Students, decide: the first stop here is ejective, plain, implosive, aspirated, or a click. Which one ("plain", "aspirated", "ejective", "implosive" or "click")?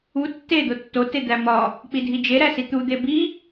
plain